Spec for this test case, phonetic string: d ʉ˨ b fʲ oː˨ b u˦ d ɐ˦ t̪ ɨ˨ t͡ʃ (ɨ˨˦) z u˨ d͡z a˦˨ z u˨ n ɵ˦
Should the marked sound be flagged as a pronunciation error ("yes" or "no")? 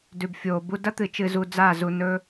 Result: yes